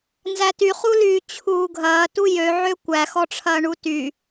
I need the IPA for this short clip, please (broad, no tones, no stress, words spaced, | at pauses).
nzætyχulyː t͡ɕʰuːɡʱɐːtu jøʕø kʷæxɔʈ͡ʂʰɐː ɳuty